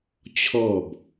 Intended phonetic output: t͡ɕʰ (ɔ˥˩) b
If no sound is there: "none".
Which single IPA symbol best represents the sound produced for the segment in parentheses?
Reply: ɔ˥˩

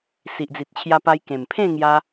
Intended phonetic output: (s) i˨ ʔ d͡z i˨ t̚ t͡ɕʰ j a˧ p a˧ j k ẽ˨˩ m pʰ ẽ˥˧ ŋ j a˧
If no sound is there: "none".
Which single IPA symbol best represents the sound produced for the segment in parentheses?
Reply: s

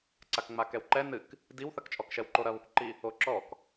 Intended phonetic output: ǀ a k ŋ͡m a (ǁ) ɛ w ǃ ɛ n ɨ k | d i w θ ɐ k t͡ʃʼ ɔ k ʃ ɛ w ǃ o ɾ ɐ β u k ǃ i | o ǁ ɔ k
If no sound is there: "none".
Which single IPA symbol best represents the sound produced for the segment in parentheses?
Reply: k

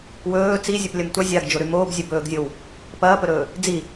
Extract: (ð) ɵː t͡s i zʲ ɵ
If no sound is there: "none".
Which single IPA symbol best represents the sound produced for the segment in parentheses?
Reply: w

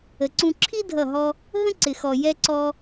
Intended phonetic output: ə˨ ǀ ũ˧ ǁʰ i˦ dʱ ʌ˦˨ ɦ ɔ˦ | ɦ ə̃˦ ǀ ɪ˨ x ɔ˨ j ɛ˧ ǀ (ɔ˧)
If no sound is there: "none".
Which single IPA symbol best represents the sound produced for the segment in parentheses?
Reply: ɔ˧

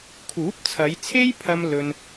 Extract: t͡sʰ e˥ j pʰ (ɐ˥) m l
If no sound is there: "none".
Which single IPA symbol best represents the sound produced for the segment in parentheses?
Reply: ɐ˥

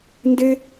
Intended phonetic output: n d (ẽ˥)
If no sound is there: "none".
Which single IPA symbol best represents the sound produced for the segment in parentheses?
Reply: e˥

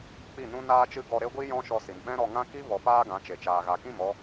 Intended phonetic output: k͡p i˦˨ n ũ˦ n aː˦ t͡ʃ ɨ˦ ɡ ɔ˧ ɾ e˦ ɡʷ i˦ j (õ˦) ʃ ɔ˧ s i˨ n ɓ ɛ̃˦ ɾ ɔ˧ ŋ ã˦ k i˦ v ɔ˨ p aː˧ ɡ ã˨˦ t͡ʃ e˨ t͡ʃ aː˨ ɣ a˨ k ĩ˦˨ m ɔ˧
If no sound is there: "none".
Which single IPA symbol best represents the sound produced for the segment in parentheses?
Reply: ɔ̃˦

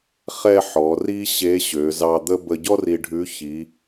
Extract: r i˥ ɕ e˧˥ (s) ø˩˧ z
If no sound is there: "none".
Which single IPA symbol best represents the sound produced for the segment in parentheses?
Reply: ɕ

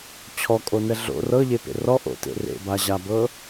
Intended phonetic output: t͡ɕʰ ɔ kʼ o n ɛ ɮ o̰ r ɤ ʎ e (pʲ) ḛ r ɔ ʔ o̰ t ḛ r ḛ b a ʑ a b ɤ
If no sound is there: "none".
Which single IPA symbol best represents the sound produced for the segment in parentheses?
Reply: p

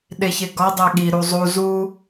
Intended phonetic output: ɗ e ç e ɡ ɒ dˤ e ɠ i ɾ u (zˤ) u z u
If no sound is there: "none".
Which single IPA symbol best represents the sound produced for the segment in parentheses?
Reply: zˤ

